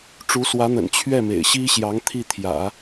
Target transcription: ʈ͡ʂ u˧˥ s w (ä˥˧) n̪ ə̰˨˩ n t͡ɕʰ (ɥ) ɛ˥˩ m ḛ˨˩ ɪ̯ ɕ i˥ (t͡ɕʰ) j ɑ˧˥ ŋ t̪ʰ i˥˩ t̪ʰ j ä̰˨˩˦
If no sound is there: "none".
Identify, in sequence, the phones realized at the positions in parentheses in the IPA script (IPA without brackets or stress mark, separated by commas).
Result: ä˧˥, ɥ, ɕ